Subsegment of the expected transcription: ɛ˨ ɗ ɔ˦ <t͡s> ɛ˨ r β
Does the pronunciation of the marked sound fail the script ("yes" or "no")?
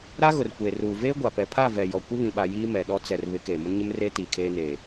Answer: no